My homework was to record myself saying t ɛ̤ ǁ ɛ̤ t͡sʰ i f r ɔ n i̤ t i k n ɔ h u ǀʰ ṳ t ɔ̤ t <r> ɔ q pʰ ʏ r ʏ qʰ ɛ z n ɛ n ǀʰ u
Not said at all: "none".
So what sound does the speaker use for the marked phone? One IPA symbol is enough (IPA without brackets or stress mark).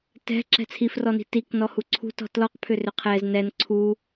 l